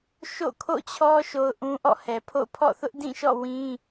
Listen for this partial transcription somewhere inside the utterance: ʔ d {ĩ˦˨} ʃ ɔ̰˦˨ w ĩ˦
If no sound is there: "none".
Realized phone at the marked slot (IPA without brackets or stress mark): ĩ˦˨